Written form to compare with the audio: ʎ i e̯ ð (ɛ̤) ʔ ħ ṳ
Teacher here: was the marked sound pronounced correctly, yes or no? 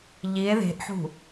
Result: no